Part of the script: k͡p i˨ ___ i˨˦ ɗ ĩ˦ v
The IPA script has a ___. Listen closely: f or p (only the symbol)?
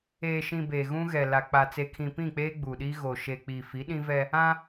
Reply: f